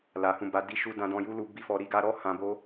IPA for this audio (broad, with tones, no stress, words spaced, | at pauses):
la˨hũ˧ba˧ di˧ʃu˧ dã˧ dɔ̃˧ju˦lu˧ bi˦fɔ˧ ɾi˧ɡa˧ɾɔ˦ hã˧bo˦